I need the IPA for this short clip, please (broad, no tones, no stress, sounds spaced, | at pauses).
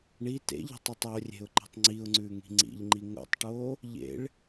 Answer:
ɳ i t ḛ ʎ i̤ tˤ e tˤ o rʲ e̤ ʊ̯ ǃ i̤ tˤ ŋ͡ǀ i ʊ̯ ŋ͡ǀ ʉː ŋ i̤ ŋ͡ǀ ḭ ʎ ŋ͡ǃ i ŋ o̰ tˤ ʈ oː | ʎ ḛ ɭ